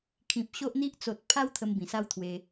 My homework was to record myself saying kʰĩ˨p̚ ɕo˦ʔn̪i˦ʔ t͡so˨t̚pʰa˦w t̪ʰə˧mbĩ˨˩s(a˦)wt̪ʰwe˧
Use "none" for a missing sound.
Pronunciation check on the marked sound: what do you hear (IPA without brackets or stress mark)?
a˦